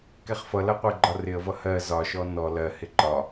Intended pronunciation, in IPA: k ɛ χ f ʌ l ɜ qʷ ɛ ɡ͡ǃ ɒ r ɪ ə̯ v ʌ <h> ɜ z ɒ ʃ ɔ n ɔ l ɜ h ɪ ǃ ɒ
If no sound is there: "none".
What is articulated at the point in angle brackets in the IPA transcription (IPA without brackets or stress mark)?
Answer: h